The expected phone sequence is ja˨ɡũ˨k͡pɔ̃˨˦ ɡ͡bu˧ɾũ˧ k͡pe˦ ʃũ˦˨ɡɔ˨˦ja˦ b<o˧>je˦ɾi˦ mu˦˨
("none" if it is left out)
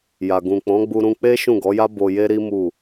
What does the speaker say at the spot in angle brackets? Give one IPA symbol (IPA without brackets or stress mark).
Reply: o˧